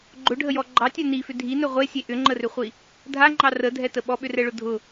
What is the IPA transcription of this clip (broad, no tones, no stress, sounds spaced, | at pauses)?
ɡ͡ǃ ʊ ɖʱ ə j ɔ ɡ͡ǃ ɑ tʲ ɛ n i f ʏ dʱ i n ɵ ʁʷ e sʲ e ʔ ʏ ŋ͡ǃ ə r ʏ χʷ i | dʱ a ŋ͡ǃ ɑ r ə dʱ ɛ t ə ɓ ɔ ɓ ʏ r ɛ ɭ ʊ dʱ ʊ